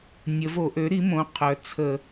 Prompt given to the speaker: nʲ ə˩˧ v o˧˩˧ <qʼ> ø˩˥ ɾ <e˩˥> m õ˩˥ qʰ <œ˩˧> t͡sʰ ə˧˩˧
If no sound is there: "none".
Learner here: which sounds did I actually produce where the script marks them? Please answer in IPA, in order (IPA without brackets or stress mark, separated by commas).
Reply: ʔ, i˩˥, œ˩˧